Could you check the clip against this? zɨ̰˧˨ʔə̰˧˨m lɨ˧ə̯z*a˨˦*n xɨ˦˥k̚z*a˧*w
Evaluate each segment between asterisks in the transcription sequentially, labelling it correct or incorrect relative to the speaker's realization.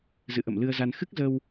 incorrect: a˧, incorrect: ə˧

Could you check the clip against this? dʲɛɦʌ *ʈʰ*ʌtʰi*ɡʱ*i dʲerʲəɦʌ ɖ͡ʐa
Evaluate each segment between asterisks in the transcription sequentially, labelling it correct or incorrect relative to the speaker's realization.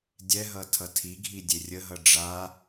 incorrect: tʰ, correct

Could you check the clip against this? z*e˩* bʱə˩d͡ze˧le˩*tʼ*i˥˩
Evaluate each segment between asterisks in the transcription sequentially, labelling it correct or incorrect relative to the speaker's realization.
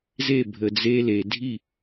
incorrect: e˥˩, incorrect: dʱ

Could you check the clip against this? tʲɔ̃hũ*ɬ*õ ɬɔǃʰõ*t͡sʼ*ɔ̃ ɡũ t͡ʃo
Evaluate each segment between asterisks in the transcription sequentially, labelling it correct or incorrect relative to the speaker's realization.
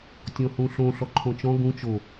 correct, incorrect: t͡ʃ

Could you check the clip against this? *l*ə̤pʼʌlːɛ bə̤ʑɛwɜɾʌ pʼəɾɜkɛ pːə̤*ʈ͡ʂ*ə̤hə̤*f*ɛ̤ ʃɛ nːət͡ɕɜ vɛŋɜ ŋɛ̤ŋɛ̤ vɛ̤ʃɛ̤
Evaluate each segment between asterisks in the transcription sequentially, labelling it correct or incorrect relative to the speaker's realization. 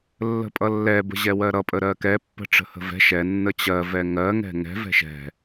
incorrect: lː, correct, incorrect: v

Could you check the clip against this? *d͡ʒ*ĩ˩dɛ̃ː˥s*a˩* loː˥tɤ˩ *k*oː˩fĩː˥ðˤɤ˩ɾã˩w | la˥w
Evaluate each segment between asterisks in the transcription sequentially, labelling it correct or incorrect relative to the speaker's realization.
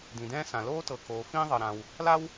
incorrect: d, incorrect: ã˩, correct

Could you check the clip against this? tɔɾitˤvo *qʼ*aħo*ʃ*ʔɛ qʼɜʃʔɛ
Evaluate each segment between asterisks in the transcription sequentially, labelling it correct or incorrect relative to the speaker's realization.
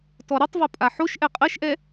incorrect: pʼ, correct

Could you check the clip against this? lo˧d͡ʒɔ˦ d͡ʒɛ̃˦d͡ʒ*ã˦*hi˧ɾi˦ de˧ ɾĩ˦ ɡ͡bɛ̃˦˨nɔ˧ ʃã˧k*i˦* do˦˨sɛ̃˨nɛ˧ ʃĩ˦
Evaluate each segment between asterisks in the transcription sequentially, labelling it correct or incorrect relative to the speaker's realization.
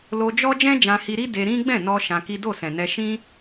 incorrect: ã˧, correct

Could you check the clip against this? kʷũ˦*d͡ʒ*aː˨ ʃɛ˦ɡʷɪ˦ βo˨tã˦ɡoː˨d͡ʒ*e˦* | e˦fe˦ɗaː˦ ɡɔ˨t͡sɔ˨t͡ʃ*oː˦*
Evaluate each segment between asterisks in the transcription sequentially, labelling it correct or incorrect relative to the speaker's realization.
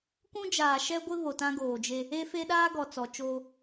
correct, correct, correct

